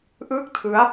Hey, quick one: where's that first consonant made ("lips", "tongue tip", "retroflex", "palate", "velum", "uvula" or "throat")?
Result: throat